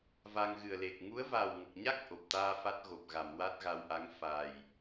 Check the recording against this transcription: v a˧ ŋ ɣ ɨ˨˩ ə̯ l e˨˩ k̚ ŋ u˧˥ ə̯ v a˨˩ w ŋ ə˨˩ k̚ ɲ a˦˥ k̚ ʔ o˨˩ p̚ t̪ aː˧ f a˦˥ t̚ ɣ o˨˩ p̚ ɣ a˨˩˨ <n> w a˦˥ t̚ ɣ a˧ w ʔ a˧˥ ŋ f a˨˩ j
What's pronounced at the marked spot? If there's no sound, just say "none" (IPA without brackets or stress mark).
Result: m